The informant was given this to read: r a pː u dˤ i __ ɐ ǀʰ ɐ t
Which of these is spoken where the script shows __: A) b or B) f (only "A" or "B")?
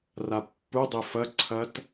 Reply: B